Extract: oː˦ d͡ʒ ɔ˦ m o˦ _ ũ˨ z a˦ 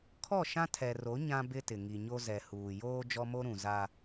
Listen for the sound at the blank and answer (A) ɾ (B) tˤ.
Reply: A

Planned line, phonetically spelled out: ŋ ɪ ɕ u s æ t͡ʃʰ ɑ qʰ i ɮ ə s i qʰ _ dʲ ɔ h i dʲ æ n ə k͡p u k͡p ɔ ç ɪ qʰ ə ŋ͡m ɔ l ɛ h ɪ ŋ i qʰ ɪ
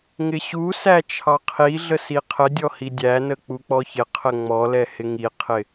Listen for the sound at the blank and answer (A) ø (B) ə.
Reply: B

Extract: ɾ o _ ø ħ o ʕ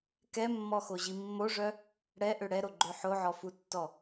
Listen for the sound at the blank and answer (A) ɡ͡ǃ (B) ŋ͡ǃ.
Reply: A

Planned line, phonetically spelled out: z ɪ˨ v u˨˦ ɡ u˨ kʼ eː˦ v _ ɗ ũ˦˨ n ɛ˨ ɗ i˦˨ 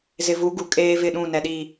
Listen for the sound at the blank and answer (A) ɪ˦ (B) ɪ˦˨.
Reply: B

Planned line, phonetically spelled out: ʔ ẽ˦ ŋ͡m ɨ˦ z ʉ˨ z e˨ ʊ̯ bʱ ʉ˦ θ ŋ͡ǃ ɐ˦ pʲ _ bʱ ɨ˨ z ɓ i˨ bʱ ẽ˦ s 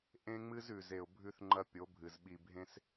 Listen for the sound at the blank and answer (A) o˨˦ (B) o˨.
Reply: A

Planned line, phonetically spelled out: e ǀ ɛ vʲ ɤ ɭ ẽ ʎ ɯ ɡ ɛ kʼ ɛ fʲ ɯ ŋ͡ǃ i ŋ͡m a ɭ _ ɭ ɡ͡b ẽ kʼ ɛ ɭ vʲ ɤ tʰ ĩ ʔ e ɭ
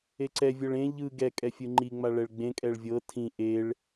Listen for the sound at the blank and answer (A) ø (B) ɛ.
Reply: B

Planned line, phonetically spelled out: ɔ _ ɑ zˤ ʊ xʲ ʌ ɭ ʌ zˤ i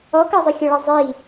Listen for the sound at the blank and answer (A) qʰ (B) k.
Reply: B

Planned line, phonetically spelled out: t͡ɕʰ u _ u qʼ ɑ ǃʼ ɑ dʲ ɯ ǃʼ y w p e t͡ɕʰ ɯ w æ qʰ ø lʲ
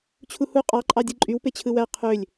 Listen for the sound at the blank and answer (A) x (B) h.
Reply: B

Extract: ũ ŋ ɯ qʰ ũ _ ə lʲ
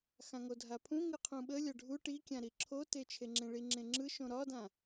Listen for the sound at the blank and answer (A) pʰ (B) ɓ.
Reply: B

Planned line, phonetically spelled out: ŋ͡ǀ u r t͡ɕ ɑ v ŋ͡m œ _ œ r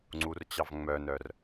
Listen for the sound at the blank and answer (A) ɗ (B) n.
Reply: B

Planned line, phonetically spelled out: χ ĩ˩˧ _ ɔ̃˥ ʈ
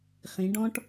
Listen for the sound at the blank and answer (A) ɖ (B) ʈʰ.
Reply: A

